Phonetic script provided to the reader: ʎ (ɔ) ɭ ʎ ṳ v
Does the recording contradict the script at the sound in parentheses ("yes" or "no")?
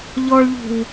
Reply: no